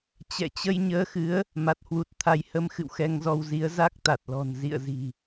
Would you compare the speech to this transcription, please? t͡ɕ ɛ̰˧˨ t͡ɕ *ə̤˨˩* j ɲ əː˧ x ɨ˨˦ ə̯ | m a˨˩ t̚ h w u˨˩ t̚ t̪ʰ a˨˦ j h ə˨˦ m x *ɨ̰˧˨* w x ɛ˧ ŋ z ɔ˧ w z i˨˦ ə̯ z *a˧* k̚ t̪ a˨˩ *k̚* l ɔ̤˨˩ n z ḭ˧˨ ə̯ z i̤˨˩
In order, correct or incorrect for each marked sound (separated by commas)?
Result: incorrect, correct, incorrect, incorrect